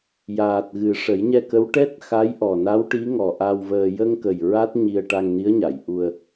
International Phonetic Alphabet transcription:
j aː˨˩ t̚ ɣ ɨ˨˩˦ ʂ ə˨˩˦ j ɲ ɛ˧ k ə˧˥ w ʈ ɛ˦˥ t̚ x a˧˥ j ʔ ɔ˨˩ n a˧˥ w ʈ i˧˥ ŋ ɔ˨˩ ʔ a˧ w v əː˧ j ə˧ ŋ k ə˨˩ j ɹ a˦˥ t̚ ɲ i˧ ə̯ ʈ a˧ ŋ n i˧˥ ə̯ ɲ a˨˩˨ j ʔ u˧ ə̯

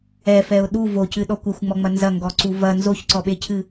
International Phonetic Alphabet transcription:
ɛ f ɛ ʊ̯ ɗ u v o c ɨ ɗ ɔ kʷ ɘ xʷ ŋ͡m ɔ ŋ͡m ɐ n z ɐ ŋ ɡ ɔ ǀ u v ɐ n z o ç ǀ ɔ ɓ e cʰ ɨ

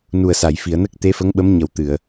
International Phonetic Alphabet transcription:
n u˨˩ ə̯ s a˨˩˨ j f i˨˩˨ ə̯ n ə˦˥ k̚ t̪ e˧˥ f ə˧˥ ŋ ɓ ə˧˥ m ɲ ə˨˩˦ w t̪ ɨ˨˩˨ ə̯

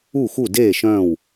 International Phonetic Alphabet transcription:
u˥˨ x u˥˨ d eː˥˨ ʃ œ̃ː˥˨ w

